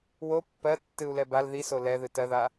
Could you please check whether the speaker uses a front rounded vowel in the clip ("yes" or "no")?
no